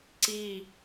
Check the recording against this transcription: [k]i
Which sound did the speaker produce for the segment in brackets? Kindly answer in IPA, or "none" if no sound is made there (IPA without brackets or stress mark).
ǀ